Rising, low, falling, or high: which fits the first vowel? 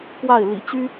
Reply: falling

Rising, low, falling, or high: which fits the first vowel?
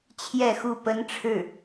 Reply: falling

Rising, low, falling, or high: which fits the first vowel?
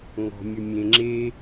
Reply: low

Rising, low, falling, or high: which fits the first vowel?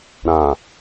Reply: low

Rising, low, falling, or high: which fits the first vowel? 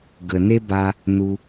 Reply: low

